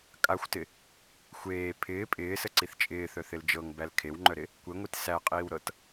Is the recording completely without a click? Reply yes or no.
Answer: no